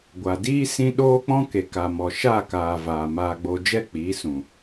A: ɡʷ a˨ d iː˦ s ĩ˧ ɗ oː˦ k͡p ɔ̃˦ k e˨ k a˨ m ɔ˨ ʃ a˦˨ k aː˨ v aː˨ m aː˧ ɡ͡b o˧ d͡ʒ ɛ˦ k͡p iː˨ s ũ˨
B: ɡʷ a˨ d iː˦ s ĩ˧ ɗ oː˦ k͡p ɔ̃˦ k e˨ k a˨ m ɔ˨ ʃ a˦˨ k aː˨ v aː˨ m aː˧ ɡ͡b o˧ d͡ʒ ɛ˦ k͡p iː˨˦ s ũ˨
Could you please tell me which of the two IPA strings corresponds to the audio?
B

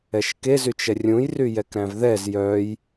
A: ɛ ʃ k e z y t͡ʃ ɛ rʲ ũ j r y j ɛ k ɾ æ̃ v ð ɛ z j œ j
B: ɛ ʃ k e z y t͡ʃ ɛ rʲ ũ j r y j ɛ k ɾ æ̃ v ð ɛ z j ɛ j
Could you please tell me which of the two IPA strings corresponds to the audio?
A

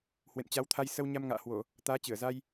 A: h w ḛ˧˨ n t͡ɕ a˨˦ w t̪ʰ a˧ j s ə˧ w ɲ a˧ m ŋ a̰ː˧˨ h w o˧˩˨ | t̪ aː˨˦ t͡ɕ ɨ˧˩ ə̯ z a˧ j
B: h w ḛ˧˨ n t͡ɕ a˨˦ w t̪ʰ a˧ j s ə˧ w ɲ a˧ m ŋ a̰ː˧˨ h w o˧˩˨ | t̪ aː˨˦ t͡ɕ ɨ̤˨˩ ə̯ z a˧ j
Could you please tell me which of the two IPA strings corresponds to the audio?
A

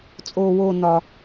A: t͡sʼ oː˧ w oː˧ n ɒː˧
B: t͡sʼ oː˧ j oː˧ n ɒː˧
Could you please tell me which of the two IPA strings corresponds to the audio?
A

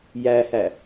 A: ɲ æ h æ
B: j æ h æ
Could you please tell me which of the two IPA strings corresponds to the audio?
B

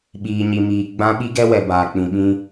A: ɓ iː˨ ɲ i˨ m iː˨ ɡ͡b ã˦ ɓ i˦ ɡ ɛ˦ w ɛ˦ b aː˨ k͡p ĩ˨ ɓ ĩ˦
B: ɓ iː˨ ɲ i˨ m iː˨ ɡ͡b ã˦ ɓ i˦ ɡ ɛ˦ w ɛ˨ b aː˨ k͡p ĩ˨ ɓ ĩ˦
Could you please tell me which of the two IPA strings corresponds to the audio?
B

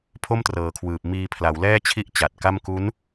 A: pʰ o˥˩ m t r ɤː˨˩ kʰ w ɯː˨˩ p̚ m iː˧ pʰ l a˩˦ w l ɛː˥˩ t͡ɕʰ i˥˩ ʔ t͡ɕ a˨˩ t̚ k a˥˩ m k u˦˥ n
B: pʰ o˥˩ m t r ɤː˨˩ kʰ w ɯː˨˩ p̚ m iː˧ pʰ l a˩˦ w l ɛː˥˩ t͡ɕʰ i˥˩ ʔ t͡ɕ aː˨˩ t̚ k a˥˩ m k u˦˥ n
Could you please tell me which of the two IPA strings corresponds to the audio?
A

